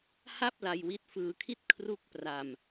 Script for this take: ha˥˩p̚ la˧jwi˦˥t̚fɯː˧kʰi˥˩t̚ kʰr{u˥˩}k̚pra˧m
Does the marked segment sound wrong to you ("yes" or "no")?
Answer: no